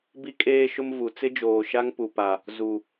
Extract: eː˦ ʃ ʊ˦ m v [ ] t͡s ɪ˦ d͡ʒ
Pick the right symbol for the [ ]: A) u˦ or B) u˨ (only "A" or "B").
B